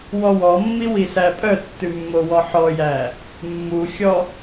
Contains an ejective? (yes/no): yes